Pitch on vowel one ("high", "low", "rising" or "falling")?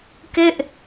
falling